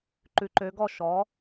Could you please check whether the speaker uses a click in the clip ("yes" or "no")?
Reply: yes